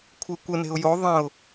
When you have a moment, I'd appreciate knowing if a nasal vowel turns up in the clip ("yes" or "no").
yes